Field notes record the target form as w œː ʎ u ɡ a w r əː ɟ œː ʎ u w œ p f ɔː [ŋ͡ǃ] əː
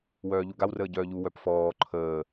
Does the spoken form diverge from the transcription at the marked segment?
yes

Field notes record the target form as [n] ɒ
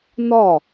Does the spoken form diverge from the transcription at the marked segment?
no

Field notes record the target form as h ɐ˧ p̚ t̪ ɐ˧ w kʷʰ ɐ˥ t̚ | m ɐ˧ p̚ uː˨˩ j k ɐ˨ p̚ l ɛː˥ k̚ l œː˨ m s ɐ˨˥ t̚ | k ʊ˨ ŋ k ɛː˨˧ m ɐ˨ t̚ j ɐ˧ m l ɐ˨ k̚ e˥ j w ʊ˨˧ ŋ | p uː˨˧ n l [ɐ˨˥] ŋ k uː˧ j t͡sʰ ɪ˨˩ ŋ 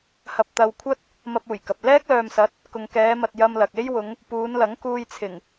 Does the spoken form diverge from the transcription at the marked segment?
no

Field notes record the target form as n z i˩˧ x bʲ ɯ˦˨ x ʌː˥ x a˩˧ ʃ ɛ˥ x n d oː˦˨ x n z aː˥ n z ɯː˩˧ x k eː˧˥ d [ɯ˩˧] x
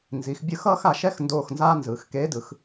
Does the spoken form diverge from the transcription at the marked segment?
no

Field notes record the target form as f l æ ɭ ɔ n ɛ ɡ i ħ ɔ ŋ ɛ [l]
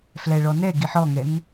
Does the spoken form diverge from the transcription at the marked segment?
yes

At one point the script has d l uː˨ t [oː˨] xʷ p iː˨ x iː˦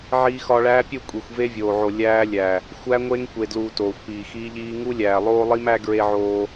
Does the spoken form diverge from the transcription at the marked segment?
no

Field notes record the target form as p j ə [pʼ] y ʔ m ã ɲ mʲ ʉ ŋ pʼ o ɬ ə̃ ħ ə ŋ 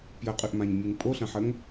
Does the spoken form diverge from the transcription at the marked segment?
yes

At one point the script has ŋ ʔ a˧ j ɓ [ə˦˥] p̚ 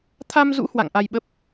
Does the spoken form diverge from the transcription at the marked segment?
no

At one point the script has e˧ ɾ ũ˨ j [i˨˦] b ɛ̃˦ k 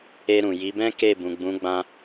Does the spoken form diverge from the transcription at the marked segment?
no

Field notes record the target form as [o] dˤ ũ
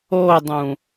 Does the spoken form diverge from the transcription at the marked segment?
no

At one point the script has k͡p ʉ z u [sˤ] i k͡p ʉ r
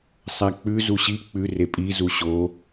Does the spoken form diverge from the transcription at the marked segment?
yes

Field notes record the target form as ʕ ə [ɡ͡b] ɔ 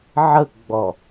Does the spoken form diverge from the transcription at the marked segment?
no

